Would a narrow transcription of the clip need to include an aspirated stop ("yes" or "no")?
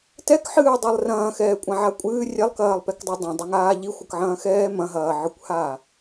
no